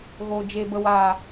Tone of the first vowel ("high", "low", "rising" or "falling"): low